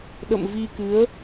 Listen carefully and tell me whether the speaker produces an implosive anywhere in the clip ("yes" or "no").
yes